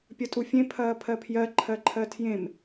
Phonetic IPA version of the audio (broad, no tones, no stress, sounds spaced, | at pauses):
pʲ ɐ tʼ u fʲ ẽ pʰ ɐː pʰ ɜ pʰ j ɜ ǃʰ ɜ ǃʰ ɜ tʰ j ẽ m